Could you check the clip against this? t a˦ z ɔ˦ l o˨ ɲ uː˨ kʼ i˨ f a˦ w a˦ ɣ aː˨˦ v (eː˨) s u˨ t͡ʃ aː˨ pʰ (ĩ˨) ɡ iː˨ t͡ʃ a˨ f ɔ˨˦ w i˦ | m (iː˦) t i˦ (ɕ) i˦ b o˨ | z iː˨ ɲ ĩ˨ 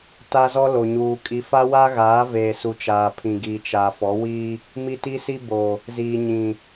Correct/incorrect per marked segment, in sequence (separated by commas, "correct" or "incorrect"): correct, correct, incorrect, incorrect